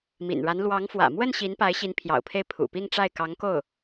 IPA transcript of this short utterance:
m ḭ˨˩ n ɻ a˧˥ n l w ɑ˧˥ ŋ f w ä̰˨˩ m w ə˥˩ n ɕ i˧˥ n p a˧˥ ɪ̯ ɕ i˧˥ n pʰ j ɑ̰˨˩ ʊ̯ pʰ e˥˩ ɪ̯ pʰ ṵ˨˩ p i˥˧ ŋ ʈ͡ʂ a˥˩ ɪ̯ k ɑ˧˥ ŋ k o˥˩ ʊ̯

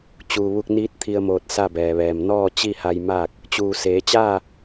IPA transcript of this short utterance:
t͡ɕ uː˩ ʋ u˧ k̚ n iː˧˥ t̚ t̪ʰ i˧ ə̯ m oː˧˩ t̚ s a˥˨ b ɛː˩ ʋ ɛː˩ m n ɔː˥˨ t͡ɕ i˥˨ h a˧ j m aː˥˨ k̚ | t͡ɕ uː˩ s eː˩˧ t͡ɕ aː˥˨

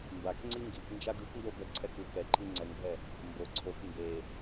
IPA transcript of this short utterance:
m b a k ŋ͡ǀ i ŋ ɡ i k n d͡ʒ a ɡ ɯ k n d o b ɛ ǀʰ ɛ k ɯ k ɛ ǃʰ i ŋ͡ǀ ɛ ŋ ɡʱ ɛ | m b o ǀʰ o k n d e

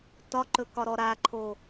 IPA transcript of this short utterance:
t ɒ ǃ ɵ k ɒ ɾ ɔ ɾ a ǃʰ o

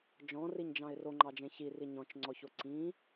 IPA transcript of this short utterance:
d͡ʒ ɔ̃ r i ɲ d͡ʒ ɑ̃ ɪ̯ r o ŋ͡ǃ ɑ d͡ʒ ẽ ç i r i ɲ ɔ̃ t͡ʃ ŋ͡ǀ ɔ ç o ǀ ĩ

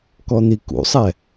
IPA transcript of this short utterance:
k ɔ n̪ i k ṵ sˤ ɛ

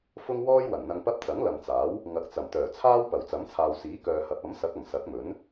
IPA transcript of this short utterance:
f ʊ˥ ŋ w ɔː˥ j w ɐ˨˩ n n̪ ɐ˧ ŋ p ɐ˥ p̚ t͡s ɐ˨˥ ŋ l ɐ˨ m t͡s aː˨˥ w | ŋ ɐ˨˥ k̚ t͡s ɐ˨˩ m t̪ œː˨˩ t͡sʰ aː˥ w p ɐ˨˩ w t͡s ɐ˨˥ m t͡sʰ aː˨ w s iː˨˥ k œː˨ h ɐ˨˥ p̚ ɐ˨˥ m s ɐ˨˥ k̚ ɐ˨˩ m s ɐ˨˥ k̚ m ɵ˨˥ n

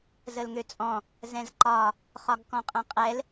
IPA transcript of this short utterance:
z ə l ŋ ø t͡sʼ ɔ̃ | z ɛ̃ z ǃ ɒ | χ ɒ ɡ k ɔ̃ qʼ ɛ̃ qʼ ɛ l

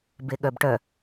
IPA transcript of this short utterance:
b e ɠ œ b ʈ œ

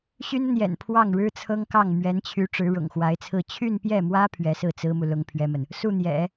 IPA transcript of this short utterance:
ɕ y˥ n ə˨ n j ɛ̰˨˩ n pʰ w ɑ˥˩ ŋ ɻ ɻ̩˥ t͡sʰ ɤ˥ ŋ k ɑ˥˩ ŋ m ɥ ɛ˧˥ n t͡ɕʰ y˧˥ ʈ͡ʂ ɻ̩˧˥ ɻ ʊ̰˨˩ ŋ x w a˧˥ ɪ̯ t͡sʰ ɹ̩˥˧ t͡ɕʰ y˥˧ n p j ɛ˥˩ m w ä˥ pʰ ɥ ɛ˧˥ s ɹ̩˥˩ t͡s ɹ̩˥ m u˨ l ʊ˥ ŋ pʰ ɥ ɛ˥ m ə˨ n | s u˥˩ n̪ j ɛ̰˨˩˦

